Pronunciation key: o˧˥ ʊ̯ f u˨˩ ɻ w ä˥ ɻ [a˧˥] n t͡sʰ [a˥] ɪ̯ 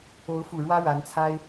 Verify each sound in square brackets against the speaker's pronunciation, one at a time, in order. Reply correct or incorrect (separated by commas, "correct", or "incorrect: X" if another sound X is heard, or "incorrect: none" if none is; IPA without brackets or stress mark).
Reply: correct, correct